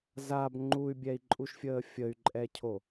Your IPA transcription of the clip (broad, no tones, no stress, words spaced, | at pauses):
zab ŋ͡ǃuy̯bʲɛi̯ǃʼuʃfʲəː fʲəy̯ǃʼɛcʰo